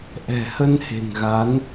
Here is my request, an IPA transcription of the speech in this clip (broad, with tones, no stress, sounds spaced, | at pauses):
ʔ ɛ̤˨˩ h ə˧ n h e̤˨˩ ŋ ɣ a˨˦ n